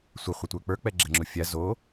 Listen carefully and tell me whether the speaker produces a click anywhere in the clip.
yes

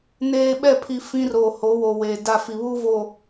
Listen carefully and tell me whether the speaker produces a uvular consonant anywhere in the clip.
no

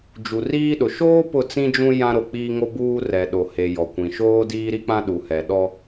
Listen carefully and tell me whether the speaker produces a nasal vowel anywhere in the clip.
yes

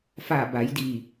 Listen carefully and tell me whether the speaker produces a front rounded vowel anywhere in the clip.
no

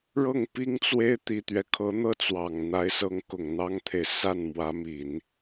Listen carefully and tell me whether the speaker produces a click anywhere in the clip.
no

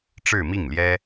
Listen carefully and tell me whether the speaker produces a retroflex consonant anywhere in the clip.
yes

